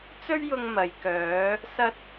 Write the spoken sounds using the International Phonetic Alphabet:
t͡s ɵ˥ ɥ j ʊ˧ ŋ m ɐ˨ j k œː˨˧ | s ɐ˧ t̚

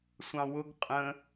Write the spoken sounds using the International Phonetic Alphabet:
sʷ ɑ̃ w ʊ ɡ qʼ ə̃

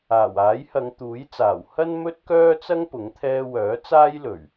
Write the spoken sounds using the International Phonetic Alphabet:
aː˨˩ w aː˨˥ j h ɐ˨˧ ŋ t̪ uː˨˥ j t͡s aː˨˩ w h ɐ˥ n m ɵ˥ t̚ k œː˥ t͡s ɐ˥ ŋ p ʊ˨˥ ŋ t̪ʰ ɛː˥ w œː˨˥ t͡s aː˥ j l ɵ˨˩ ɥ

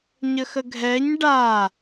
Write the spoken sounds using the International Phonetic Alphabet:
ɲ ə x ə ɡʱ ɛ ɲ ɖ a

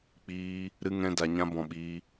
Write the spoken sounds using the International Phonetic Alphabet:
k͡p iː˦ | ɾ ɨ˦ ŋ ɛ̃˦ d a˧ ɲ ã˦ b ɔ̃˧ ɓ iː˦

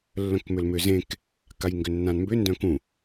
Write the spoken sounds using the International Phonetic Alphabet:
lː œ̃ k m ʏ l m ʏ z ẽ k | k a j ŋ ɡ ʏ nː ã n m b ʏ n d œ̃ k ũ

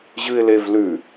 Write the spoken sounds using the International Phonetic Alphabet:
ʑ ɨ ɪ̯ l e v l ʉ

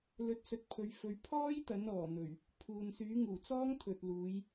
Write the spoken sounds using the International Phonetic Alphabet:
l ɵ˨˥ t̚ s ɵ˨ t̚ pʰ ɵ˨˧ ɥ f ɵ˨˧ ɥ pʰ ɔː˥ j t̪ ɐ˨˥ n ɔː˨˩ n̪ ɵ˨˩ ɥ | pʰ uː˨ n s yː˨˥ ŋ uː˨˩ t͡s ɔː˥ ŋ t̪ʰ ɵ˨ t̚ l uː˨˧ j

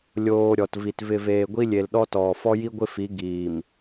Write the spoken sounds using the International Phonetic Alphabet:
lʲ oː˦ ɾʲ ɔ˨ t v i˨ t v ɪ˨ v eː˨ ɡʷ i˦ lʲ e˨ l ɗ ɔ˦ t ɔː˨ f ɔ˦ j i˦ ɡʷ ɪ˦ f i˨˦ ɡ iː˨ m

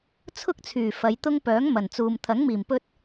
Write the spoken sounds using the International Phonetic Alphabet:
t͡sʰ ʊ˥ k̚ t͡sʰ yː˨˩ f ɐ˨˧ j t̪ ʊ˥ ŋ p œː˨˥ ŋ m ɐ˨˩ n t͡s uː˨ m t̪ʰ ɐ˨˥ ŋ m iː˨˩ m p ɵ˧ t̚

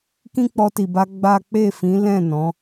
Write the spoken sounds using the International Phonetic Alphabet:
k ĩ˦ k͡p ɔ˧ t i˨ b a˧ ɡ͡b a˦ k͡p e˦˨ f ĩ˨˦ l ɛ̃˦˨ n ɔ̃˨˦

